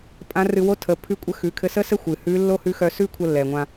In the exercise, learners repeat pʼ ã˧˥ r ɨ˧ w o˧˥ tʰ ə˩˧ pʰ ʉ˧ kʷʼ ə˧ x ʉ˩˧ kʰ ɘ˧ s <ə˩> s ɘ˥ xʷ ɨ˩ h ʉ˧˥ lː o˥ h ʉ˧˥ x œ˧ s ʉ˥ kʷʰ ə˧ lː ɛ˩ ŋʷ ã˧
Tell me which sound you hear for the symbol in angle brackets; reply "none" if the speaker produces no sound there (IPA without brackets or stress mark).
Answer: ə˥